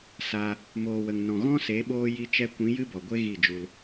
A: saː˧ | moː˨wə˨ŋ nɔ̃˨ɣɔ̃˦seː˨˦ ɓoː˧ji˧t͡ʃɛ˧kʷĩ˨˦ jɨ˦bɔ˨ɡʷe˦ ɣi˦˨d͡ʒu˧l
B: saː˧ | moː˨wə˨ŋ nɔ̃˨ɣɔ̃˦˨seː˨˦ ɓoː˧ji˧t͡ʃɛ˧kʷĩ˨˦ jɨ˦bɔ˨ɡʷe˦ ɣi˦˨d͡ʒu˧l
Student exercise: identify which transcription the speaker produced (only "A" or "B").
A